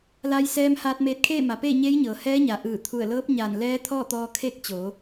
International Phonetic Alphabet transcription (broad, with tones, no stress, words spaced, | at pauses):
la˧jsɛː˧mhaː˧t̚meː˧t̚ kʰeː˥˨ma˩˧peː˥˨ ɲeː˧˥jɲɤː˩hɛː˧˥ɲa˩ ʔɯː˧˩ t̪ʰu˧˩ə̯lɤː˧˥p̚ ɲaː˧˩n lɛː˧˥t̪ʰɔː˥˨t̪ɔː˧ kʰe˥˨k̚t͡ɕo˩˧